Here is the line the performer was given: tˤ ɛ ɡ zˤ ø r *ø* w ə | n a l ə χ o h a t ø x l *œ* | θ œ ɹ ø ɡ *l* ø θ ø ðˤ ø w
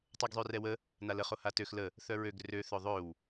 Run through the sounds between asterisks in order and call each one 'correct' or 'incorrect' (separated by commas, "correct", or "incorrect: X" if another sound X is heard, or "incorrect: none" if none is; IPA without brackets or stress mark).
incorrect: ɛ, incorrect: ə, incorrect: r